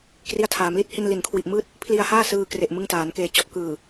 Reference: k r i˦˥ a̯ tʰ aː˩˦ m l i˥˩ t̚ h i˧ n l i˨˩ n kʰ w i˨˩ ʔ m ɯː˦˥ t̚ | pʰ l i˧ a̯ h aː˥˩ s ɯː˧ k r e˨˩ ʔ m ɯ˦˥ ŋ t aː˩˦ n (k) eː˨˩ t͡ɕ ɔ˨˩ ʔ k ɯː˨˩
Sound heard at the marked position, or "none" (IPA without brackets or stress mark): k